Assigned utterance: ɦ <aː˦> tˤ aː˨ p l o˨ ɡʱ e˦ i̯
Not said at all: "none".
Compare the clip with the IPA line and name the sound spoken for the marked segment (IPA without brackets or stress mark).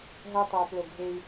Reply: ɐː˦